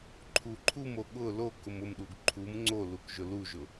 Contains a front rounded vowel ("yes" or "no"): no